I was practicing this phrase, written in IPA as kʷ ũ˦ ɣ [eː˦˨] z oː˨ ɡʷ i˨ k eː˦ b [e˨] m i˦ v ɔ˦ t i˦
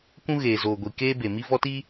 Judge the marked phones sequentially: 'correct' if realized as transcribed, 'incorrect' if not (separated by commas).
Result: incorrect, correct